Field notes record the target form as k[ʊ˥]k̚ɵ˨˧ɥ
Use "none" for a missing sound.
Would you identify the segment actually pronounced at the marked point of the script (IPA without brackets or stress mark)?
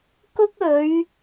ʊ˥